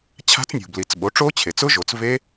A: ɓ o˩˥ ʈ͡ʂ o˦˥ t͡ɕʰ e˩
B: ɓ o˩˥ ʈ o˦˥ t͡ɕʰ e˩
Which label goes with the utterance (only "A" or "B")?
A